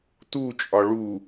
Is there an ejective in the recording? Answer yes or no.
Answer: yes